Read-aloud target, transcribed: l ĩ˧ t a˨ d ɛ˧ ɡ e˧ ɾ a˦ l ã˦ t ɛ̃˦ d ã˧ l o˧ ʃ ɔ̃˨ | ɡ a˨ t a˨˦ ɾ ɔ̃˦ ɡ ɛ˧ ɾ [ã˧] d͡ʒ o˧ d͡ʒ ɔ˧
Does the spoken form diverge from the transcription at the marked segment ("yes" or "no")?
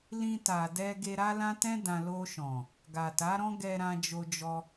no